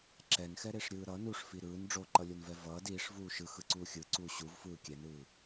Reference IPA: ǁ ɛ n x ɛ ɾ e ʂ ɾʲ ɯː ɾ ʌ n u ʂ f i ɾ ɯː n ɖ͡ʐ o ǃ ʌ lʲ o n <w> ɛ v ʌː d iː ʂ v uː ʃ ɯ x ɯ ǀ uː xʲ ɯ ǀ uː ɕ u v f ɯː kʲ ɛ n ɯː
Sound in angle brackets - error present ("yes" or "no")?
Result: yes